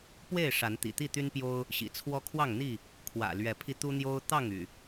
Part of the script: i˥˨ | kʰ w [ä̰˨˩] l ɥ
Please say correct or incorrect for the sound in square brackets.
correct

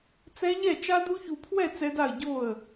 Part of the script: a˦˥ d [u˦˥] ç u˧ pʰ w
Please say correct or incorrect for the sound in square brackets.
correct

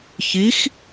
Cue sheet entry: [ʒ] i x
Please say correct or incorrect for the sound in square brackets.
incorrect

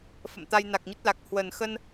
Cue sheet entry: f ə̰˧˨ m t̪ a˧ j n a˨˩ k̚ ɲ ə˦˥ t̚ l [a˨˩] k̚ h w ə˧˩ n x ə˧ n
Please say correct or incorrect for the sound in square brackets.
correct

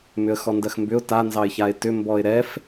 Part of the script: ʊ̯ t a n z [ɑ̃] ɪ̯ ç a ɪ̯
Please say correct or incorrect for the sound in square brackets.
incorrect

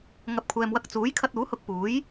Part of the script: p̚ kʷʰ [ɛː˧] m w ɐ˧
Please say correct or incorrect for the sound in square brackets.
incorrect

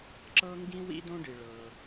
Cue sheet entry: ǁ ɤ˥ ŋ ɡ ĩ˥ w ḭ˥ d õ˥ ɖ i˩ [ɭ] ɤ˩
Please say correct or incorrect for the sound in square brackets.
correct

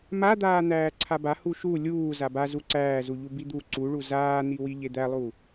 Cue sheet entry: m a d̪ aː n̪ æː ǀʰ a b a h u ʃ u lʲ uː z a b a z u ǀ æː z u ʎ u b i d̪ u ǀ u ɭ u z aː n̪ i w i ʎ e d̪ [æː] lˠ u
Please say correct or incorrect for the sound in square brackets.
incorrect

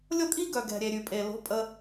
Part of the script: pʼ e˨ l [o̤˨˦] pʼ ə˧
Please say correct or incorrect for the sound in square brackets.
correct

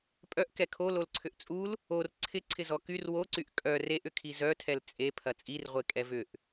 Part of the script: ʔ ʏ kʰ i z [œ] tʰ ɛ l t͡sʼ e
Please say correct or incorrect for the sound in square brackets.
correct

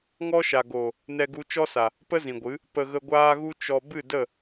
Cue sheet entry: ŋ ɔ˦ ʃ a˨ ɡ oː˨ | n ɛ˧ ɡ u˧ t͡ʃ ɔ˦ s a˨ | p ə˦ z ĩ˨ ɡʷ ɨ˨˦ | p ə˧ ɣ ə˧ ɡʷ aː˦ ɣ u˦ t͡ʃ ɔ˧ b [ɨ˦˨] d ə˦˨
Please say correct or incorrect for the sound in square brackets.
correct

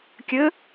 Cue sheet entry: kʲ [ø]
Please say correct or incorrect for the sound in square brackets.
incorrect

